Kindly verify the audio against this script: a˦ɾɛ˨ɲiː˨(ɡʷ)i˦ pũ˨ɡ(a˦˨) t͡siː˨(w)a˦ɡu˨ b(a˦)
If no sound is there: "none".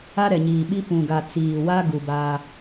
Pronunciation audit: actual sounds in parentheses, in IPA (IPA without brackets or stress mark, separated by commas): ɓ, a˨, w, a˦